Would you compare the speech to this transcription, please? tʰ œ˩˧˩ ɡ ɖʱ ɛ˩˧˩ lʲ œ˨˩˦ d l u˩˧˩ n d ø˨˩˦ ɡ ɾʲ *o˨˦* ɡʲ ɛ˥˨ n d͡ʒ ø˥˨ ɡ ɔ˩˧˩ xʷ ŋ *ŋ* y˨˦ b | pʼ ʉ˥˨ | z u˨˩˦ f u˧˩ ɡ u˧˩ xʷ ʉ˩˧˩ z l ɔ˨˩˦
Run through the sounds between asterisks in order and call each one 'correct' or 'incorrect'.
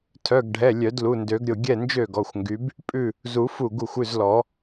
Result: incorrect: o˧˩, incorrect: ɡ

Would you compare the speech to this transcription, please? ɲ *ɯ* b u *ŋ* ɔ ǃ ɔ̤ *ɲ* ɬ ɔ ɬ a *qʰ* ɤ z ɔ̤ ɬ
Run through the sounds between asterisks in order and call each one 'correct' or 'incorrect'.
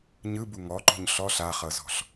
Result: correct, correct, correct, incorrect: χ

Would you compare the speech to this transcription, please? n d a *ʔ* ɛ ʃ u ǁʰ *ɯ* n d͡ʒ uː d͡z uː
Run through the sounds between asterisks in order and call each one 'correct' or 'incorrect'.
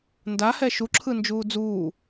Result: incorrect: h, correct

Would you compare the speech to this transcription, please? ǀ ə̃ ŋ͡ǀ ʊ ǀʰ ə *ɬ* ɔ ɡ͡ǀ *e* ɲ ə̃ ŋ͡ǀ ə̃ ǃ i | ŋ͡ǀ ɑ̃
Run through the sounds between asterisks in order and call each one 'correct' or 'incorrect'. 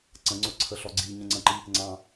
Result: correct, incorrect: i

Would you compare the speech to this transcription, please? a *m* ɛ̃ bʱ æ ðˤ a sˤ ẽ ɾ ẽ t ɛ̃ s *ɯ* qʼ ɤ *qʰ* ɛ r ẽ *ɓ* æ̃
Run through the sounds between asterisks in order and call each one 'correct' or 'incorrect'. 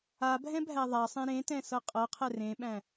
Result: incorrect: bʱ, incorrect: ɤ, correct, correct

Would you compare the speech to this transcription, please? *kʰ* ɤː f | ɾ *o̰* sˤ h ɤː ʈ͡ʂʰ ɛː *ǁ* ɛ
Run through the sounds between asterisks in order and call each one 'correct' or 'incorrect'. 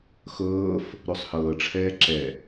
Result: incorrect: x, incorrect: o, correct

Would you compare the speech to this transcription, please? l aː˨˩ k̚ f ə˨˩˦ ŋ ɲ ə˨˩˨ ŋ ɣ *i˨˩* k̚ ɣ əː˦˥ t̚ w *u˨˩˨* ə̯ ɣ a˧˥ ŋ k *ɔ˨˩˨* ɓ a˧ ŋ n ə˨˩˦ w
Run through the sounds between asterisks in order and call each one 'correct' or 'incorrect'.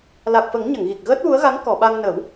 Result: correct, incorrect: u˧˥, correct

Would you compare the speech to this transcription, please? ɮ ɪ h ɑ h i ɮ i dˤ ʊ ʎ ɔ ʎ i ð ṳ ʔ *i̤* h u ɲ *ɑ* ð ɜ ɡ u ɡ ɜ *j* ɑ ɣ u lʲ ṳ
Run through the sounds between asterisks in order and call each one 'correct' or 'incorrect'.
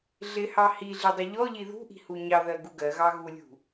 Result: correct, correct, incorrect: ɣ

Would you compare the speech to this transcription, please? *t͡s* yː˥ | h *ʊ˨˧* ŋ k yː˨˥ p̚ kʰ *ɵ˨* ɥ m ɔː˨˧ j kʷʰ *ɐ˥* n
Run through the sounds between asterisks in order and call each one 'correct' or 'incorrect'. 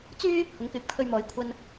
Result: correct, correct, incorrect: ɵ˧, incorrect: ɐ˧

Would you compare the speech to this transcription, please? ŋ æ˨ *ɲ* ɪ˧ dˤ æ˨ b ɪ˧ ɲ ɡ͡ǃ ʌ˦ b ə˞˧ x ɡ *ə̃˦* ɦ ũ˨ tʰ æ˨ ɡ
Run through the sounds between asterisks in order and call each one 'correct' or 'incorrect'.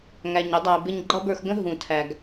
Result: correct, correct

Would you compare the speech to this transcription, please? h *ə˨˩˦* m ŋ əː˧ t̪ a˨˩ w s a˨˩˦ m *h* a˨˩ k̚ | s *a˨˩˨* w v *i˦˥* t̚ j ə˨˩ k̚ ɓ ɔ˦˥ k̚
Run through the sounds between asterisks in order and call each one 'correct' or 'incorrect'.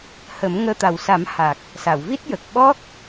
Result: correct, correct, correct, correct

